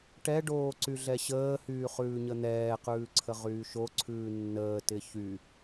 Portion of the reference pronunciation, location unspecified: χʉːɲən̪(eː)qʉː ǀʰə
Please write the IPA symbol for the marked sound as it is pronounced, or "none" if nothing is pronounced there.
ɛː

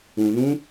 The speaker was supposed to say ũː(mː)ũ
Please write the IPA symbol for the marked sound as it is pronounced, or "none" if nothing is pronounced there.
n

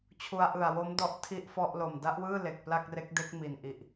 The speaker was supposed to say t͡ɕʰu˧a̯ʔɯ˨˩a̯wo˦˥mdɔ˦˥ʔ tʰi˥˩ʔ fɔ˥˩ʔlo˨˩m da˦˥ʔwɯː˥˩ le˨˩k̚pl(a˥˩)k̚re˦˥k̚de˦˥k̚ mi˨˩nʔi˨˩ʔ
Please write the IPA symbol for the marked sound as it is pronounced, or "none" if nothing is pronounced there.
a˥˩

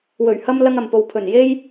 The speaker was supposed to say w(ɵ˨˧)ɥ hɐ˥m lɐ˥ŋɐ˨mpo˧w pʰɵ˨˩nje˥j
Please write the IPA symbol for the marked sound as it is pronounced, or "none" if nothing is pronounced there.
ɵ˨˩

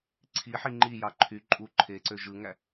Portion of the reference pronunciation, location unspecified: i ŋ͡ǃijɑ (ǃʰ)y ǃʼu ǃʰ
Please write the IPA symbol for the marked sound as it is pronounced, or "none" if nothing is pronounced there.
ǃʰ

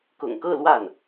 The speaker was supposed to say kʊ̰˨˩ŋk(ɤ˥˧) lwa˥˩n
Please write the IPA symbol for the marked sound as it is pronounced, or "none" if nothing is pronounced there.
ɤ˥˧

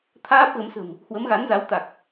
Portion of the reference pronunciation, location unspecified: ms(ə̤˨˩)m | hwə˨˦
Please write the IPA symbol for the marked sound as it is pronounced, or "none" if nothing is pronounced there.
ə̤˨˩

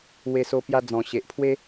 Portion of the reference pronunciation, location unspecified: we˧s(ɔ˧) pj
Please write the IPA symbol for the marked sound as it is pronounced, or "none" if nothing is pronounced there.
o˧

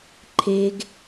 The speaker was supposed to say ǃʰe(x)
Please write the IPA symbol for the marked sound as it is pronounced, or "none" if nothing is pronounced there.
ɡ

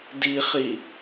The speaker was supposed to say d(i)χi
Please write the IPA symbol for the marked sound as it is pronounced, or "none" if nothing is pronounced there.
i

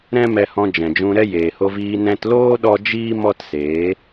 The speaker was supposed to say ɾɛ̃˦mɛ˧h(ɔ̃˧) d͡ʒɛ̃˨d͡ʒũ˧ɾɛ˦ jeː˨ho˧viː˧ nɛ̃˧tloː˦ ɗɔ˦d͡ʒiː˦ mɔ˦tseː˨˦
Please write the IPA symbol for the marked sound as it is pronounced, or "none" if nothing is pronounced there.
ɔ̃˧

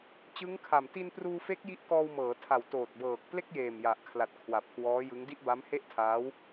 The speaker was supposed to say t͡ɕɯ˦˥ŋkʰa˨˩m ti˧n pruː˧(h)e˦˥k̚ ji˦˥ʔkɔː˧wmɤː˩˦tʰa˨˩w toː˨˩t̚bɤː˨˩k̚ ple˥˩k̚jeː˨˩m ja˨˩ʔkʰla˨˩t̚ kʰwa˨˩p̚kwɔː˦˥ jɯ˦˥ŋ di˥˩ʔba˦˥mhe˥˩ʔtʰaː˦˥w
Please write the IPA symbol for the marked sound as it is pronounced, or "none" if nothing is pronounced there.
f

